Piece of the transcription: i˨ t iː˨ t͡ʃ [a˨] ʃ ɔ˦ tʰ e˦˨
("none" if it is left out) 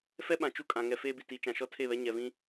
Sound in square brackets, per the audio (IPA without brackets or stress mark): ã˨